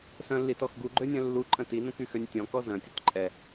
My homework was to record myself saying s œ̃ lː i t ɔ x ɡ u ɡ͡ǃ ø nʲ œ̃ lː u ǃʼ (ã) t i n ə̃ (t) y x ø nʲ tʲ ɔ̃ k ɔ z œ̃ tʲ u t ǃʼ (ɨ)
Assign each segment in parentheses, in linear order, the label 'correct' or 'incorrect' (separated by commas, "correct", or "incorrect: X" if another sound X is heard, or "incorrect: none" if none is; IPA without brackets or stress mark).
incorrect: ə̃, incorrect: k, incorrect: ɛ